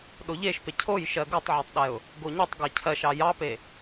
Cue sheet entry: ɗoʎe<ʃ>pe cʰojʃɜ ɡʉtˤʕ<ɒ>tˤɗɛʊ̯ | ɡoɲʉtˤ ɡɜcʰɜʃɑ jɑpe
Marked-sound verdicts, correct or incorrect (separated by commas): correct, incorrect